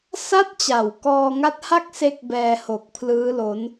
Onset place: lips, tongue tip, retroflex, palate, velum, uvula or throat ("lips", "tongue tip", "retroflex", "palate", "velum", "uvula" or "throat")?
tongue tip